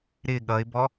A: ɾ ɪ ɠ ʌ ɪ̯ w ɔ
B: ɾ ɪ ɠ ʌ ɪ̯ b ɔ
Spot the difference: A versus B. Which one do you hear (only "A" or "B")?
B